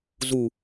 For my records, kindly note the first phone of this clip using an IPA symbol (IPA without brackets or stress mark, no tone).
z